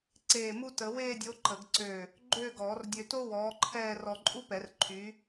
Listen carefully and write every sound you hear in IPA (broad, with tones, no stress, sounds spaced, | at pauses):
ǀ eː˧˩ m u˥ t ə˨˩˦ w eː˥˧ dʲ o˨˥ ǃ ə˨˩˦ ɡ ǀ ø˧˩ | ɡ͡ǃ øː˥˧ ɡ ɔː˨˩˦ r dʲ ø˧ t o˥ w ɔː˨˥ ǃʰ ɛː˥˧ r ɔ˧ ǃʼ u˥ p ɛ˨˩˦ r ǃʰ y˨˥